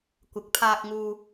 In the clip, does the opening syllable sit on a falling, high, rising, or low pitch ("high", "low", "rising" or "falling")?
rising